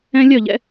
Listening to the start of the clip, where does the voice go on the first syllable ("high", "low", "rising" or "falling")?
high